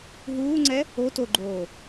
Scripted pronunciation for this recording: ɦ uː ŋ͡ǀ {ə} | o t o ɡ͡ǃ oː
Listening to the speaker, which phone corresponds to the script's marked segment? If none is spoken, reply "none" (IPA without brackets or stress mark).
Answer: ɛ